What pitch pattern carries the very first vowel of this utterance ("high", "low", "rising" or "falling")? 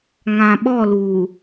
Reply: low